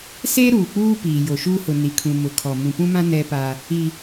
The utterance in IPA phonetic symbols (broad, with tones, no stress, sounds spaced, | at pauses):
s eː˦ ɾ uː˨ k͡p uː˦ p iː˨ j o˨ ʃ uː˦ h ʊ˨ n i˨ kʰ ũ˨ m ʊ˨ kʰ ɔ˨ m ũ˨ p ũ˦ m ã˦ n ɛ˦ p a˦ | i˦